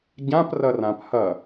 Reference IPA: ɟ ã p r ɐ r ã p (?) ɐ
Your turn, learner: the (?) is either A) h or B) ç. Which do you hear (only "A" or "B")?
A